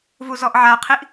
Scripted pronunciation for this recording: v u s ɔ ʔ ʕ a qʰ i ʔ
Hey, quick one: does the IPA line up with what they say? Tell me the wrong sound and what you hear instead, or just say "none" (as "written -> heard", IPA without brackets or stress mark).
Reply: s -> z